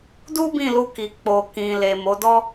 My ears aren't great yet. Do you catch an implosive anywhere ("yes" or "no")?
no